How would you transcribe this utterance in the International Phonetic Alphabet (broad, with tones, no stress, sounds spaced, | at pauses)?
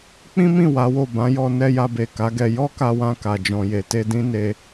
k͡p ĩ˦ m ĩ˦˨ w a˨˦ w o˦˨ b ã˨˦ j ɔ˧ n ɛ˧ j a˧ b e˨ k a˨˦ ɡ ɛ˧ j ɔ˦ k a˧ w ã˧ k a˨ d͡ʒ ɔ̃˨ j e˨ t e˧ d ĩ˦ n e˧